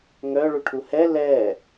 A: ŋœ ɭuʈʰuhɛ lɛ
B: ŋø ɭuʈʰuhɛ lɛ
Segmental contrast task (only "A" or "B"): A